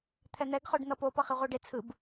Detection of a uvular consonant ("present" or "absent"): present